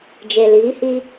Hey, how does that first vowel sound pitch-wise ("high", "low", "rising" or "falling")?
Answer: low